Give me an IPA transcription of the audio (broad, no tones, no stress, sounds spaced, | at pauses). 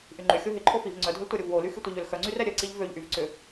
ʔ y ŋ͡ǃ ʏ xʲ o ɦ ɪ ǃʰ o f i v ŋ͡ǀ œ dʱ ʏ l tʷ a ɾʲ o v w o l y x y tʷ ɪ ʎ ø l x œ ŋ͡ǀ y r ɛ ɾʲ œ ǀ i ʎ v ø ʎ ʔ y v ǀ ʏ